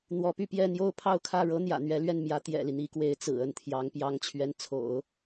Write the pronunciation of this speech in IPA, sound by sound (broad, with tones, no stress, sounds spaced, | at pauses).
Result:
n̪ w ɔ˧˥ p y˥˧ p j ɛ˥˧ n̪ j o˥˧ ʊ̯ pʰ ɑ˥˧ ʊ̯ kʰ ä˥˩ ɻ ɤ˥ n̪ j ä̰˨˩ n̪ ɥ ɛ˧˥ l ɥ ɛ˥˩ n m j ä˧˥ t̪ j ɛ̰˨˩ l i˦ n̪ i˧˥ k w e˧˥ ɪ̯ t͡s ɹ̩˨˩ ə˥˩ n t̪ʰ j ɑ˧˥ ŋ p j ɑ˧˥ ŋ t͡ɕʰ ɥ ɛ˧˥ n t͡sʰ o̰˨˩˦ ʊ̯